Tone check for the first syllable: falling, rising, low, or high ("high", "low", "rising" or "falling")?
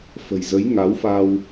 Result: low